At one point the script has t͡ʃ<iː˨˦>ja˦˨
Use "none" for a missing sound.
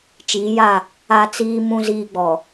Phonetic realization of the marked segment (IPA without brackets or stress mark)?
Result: iː˨˦